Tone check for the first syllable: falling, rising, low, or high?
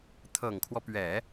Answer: low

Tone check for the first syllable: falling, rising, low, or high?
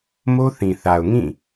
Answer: high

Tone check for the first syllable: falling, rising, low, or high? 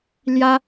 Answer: high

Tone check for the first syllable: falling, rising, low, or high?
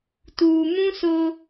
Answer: low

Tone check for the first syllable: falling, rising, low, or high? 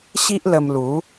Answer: high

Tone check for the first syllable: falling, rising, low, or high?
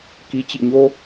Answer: rising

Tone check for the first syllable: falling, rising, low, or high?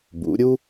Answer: rising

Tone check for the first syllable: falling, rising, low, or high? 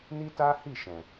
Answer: high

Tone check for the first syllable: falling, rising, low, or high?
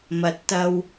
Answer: rising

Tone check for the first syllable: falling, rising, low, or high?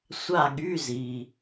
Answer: falling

